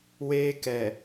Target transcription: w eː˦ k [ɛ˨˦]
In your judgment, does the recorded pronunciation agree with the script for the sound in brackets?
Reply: no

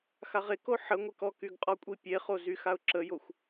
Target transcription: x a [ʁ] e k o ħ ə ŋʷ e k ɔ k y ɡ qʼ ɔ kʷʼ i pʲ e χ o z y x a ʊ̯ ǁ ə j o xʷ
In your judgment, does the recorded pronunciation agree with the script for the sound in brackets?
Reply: yes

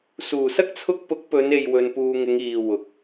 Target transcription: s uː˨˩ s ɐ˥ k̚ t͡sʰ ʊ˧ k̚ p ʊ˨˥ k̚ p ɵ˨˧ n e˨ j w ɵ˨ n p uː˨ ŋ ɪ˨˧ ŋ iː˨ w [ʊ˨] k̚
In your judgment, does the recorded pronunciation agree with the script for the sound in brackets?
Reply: yes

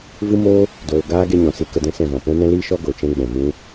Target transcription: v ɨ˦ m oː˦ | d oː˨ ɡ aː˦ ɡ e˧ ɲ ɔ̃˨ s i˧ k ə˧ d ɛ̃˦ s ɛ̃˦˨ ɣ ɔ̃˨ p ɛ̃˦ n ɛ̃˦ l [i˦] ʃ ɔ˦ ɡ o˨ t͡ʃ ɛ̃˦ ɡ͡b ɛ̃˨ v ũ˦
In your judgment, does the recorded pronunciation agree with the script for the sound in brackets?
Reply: no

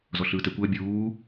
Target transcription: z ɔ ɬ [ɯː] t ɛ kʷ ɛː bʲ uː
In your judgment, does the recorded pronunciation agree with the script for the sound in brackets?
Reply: yes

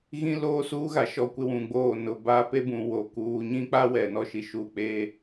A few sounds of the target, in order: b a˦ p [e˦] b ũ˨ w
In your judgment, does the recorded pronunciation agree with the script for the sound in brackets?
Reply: yes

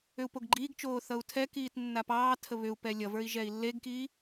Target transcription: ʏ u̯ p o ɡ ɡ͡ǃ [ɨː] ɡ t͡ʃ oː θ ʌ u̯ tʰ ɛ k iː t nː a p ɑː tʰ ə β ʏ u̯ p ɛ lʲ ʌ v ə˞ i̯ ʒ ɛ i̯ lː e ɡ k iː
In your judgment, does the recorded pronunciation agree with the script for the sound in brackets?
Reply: no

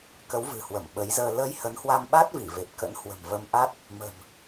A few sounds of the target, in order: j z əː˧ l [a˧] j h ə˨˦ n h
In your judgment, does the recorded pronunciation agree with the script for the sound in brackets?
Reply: no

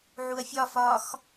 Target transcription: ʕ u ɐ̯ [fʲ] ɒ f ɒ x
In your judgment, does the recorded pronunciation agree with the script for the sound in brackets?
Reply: yes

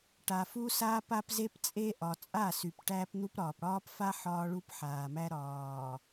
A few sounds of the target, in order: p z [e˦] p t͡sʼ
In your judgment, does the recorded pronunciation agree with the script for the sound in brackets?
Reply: yes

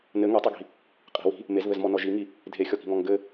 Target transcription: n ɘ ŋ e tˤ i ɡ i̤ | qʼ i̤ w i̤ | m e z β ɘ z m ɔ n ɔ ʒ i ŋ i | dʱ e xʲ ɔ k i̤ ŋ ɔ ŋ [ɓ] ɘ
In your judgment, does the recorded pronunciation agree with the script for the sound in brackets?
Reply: no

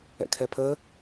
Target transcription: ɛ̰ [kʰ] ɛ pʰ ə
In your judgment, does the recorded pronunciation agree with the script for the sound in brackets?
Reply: yes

